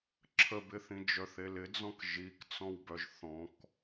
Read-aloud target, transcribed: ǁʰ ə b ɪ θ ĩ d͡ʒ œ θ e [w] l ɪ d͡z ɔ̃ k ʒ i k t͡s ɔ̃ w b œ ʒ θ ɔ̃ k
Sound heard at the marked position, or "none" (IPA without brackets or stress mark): none